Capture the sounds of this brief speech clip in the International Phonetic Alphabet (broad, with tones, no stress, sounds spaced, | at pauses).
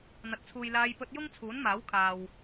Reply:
n̪ ɐ˨ t̚ t͡sʰ uː˨ j l aː˧ j p ɵ˧ t̚ j ʊ˥ ŋ t͡sʰ uː˨˥ n m aː˨˥ w kʰ aː˨ w